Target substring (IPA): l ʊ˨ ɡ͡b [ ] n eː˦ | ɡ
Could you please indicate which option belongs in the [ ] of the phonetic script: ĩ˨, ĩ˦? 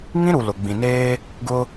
ĩ˨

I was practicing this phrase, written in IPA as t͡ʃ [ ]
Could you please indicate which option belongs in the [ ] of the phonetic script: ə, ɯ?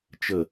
ə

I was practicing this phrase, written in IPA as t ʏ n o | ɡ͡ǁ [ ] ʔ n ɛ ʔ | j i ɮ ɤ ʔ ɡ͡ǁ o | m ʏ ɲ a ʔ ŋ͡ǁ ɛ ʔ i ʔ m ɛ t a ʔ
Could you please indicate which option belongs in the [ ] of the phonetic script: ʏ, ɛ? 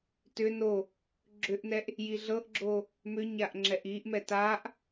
ʏ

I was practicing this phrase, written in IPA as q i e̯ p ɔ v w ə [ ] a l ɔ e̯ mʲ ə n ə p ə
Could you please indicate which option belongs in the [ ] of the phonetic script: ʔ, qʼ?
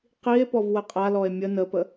qʼ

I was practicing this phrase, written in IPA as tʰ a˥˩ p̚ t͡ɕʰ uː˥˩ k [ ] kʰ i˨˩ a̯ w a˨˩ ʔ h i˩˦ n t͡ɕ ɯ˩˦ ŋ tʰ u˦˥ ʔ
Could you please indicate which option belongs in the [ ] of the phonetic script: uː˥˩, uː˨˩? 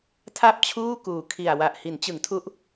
uː˨˩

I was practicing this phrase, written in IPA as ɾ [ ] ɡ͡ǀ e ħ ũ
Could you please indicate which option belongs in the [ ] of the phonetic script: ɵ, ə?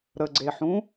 ə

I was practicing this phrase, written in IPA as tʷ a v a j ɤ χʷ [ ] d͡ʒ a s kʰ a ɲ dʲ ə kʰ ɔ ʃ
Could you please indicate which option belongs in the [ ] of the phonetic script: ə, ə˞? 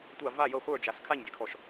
ə˞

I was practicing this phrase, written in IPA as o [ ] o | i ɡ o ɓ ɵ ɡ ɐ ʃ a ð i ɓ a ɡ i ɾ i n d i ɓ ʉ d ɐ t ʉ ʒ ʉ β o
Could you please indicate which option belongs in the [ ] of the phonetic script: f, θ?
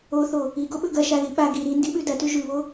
θ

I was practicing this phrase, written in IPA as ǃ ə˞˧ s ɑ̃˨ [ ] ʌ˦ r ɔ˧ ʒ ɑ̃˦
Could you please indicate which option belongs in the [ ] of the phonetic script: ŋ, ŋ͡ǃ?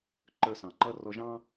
ŋ͡ǃ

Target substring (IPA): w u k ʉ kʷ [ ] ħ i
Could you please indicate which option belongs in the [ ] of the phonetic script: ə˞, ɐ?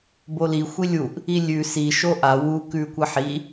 ɐ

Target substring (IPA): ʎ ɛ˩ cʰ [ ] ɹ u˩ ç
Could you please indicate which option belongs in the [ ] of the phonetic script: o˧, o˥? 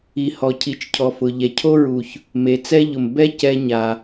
o˥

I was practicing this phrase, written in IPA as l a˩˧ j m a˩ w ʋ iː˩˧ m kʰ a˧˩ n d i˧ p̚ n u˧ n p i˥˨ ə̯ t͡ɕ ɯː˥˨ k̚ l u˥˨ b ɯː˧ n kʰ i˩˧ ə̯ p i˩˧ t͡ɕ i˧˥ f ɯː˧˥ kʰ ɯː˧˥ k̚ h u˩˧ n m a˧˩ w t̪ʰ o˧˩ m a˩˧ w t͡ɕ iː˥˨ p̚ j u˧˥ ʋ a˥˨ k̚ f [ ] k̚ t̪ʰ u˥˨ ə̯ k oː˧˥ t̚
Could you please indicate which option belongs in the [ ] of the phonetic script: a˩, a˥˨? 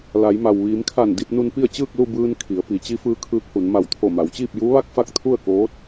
a˥˨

